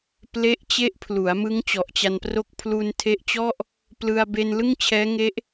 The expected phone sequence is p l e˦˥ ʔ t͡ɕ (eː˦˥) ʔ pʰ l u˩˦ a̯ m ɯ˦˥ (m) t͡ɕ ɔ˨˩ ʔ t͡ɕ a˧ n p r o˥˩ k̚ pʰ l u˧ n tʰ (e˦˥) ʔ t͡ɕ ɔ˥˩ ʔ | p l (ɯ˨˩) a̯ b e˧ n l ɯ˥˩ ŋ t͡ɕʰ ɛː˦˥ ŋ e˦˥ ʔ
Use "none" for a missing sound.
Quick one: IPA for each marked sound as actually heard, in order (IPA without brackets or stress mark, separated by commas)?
e˦˥, ŋ, e˦˥, ɯ˧